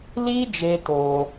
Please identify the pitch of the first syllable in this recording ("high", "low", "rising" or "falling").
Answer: high